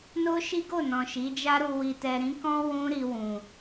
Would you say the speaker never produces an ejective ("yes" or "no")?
yes